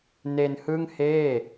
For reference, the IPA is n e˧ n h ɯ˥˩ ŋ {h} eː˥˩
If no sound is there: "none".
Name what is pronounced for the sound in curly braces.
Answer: h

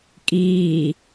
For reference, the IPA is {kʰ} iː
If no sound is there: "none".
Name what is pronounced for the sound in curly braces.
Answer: kʼ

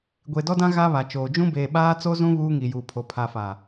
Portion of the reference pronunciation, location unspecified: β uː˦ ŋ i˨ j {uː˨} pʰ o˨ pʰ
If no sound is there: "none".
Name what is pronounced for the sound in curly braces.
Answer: uː˨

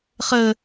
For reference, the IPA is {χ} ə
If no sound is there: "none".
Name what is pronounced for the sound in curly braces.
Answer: χ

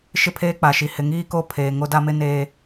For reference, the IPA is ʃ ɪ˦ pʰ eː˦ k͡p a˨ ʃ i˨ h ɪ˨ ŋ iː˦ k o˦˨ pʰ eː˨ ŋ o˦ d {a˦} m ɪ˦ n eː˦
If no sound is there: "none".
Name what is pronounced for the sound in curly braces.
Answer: a˦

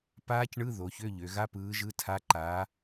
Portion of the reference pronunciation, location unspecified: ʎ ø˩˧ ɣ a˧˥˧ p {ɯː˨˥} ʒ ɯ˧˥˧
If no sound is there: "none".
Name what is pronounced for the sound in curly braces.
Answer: ɯː˨˥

